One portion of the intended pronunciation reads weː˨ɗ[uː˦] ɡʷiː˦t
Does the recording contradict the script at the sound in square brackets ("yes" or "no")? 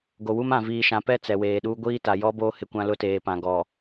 no